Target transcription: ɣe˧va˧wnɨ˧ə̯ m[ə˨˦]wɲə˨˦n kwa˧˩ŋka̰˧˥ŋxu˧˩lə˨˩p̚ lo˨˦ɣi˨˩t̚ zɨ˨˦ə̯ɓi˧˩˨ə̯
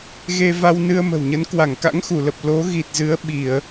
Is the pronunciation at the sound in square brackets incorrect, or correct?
incorrect